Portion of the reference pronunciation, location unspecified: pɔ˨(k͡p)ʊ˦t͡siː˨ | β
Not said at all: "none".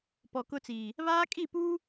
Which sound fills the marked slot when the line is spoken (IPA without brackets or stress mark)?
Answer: k